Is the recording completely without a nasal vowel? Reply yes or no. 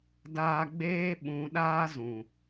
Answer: no